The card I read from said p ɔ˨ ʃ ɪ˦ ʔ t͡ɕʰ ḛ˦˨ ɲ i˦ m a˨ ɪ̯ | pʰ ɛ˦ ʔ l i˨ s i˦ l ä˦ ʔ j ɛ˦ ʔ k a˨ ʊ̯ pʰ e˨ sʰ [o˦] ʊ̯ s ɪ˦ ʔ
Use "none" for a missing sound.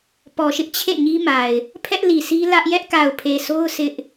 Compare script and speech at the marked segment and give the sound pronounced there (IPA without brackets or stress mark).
o˦